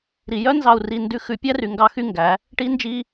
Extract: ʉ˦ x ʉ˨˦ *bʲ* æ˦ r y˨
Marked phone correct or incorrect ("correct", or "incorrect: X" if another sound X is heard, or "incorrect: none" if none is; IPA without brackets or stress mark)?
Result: incorrect: pʲ